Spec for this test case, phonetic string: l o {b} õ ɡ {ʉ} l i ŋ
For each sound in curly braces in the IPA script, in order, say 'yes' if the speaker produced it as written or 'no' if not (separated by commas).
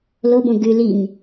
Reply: yes, yes